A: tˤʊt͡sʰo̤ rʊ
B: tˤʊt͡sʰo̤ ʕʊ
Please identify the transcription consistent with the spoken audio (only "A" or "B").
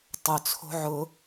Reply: B